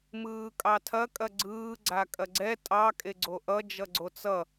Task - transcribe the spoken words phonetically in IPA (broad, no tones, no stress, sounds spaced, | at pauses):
m ɯː kʼ ɑ tʰ ɐ kʼ ɐ ɡ͡ǀ ɯː ɡ͡ǀ a kʼ ɐ ɡ͡ǀ ɛ tʼ ɑ kʼ e ɡ͡ǀ o ʔ ʌ d͡ʒ ʌ ɡ͡ǀ o t͡s ʌ